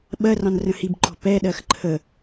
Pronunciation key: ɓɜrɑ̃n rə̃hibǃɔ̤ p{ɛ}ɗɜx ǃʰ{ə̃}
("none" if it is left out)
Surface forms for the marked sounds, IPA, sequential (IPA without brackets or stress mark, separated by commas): ɛ, ə